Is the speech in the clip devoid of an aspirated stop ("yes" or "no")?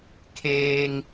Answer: no